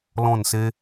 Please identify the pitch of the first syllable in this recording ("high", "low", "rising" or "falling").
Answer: falling